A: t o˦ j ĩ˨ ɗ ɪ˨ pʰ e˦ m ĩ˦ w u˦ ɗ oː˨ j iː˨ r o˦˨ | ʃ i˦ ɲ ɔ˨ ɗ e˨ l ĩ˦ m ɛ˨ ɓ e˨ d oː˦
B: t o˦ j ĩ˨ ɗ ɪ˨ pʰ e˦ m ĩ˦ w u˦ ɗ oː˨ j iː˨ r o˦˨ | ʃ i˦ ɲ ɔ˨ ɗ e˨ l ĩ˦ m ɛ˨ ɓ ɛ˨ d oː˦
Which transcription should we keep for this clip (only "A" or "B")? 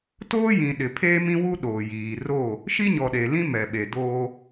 A